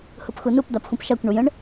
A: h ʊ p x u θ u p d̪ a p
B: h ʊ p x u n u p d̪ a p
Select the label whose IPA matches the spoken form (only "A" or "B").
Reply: B